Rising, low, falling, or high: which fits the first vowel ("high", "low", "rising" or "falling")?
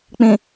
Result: low